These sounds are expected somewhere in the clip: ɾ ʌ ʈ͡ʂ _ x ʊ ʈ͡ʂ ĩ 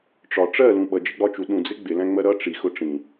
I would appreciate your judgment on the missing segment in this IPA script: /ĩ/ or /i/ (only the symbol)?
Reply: i